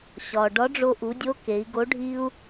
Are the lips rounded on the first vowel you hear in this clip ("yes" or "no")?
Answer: yes